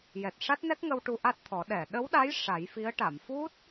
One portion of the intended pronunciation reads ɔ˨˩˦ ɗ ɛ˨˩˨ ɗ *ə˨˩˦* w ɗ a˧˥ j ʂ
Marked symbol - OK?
no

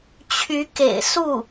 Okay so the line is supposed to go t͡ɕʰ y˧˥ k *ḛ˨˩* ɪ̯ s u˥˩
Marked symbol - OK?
yes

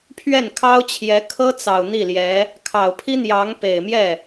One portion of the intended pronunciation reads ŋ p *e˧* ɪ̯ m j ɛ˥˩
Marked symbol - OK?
no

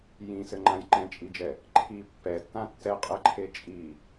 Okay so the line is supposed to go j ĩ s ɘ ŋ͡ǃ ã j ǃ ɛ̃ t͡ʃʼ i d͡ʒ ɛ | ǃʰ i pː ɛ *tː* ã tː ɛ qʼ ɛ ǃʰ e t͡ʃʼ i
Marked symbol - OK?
yes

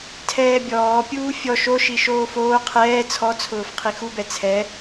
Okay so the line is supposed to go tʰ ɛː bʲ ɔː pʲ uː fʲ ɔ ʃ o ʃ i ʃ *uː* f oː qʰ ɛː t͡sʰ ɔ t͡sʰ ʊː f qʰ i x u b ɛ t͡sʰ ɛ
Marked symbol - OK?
no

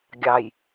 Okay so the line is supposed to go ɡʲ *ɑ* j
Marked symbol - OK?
yes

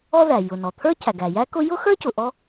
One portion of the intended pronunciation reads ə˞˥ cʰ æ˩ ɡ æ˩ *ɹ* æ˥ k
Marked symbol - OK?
no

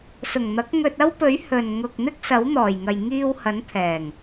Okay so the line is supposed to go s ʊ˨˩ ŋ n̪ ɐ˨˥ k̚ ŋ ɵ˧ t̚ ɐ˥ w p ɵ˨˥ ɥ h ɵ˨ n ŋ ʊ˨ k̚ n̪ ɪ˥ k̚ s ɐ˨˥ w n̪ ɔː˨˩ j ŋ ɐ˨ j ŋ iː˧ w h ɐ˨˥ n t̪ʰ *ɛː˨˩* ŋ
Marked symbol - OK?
yes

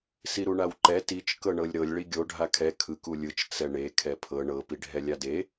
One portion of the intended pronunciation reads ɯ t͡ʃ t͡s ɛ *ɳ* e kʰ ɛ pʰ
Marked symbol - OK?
yes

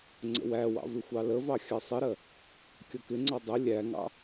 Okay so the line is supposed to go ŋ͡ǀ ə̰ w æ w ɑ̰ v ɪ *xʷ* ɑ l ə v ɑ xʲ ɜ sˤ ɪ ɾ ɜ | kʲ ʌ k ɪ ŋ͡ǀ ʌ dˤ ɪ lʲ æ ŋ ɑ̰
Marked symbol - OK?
yes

